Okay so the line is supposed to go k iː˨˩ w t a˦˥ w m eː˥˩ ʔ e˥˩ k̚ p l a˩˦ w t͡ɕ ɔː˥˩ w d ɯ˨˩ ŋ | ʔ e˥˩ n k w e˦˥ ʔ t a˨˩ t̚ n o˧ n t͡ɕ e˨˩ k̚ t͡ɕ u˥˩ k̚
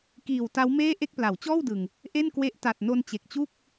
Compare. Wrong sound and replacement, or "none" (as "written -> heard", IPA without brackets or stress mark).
none